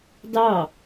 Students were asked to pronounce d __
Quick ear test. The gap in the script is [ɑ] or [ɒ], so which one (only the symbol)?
ɑ